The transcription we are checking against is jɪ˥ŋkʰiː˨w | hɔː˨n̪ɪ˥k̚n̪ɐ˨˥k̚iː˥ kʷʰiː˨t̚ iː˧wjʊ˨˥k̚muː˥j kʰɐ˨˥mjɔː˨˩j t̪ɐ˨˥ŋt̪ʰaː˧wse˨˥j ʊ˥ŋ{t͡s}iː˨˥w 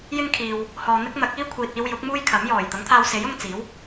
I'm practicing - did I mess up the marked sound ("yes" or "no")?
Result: no